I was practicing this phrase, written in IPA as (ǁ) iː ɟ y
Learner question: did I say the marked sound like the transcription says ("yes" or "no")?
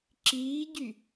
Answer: yes